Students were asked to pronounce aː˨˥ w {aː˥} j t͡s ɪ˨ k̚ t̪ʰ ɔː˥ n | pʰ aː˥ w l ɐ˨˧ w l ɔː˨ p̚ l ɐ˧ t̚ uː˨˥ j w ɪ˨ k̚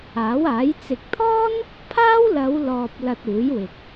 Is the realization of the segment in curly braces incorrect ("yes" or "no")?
yes